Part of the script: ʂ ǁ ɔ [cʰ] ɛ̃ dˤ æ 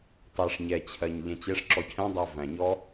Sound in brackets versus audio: correct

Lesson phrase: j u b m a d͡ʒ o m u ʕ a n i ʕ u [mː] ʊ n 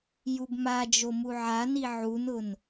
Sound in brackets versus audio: incorrect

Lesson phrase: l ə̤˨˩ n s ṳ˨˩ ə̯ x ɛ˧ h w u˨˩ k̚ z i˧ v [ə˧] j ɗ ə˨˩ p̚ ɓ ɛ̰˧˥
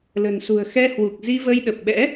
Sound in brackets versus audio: correct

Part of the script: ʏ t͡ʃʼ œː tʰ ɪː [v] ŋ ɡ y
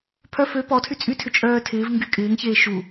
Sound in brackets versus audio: correct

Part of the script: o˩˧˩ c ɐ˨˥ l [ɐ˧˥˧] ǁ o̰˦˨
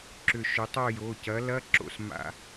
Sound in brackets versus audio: correct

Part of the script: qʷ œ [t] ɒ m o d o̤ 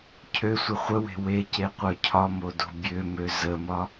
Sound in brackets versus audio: incorrect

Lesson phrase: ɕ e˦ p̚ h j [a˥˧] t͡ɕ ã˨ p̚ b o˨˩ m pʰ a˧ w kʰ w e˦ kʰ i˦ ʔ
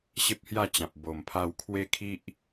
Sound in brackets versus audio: correct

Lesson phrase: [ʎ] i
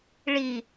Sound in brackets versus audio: incorrect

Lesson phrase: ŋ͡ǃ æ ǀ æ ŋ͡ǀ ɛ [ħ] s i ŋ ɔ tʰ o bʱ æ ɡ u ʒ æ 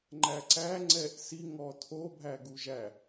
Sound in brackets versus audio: incorrect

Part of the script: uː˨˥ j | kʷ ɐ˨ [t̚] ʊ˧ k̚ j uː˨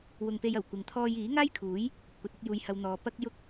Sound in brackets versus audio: correct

